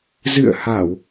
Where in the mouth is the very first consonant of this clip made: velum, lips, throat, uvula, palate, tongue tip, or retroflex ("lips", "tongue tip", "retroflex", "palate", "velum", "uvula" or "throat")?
tongue tip